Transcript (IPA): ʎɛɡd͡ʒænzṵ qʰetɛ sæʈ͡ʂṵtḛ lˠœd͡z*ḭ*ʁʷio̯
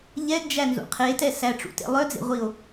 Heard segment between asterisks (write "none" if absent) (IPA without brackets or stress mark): ḛ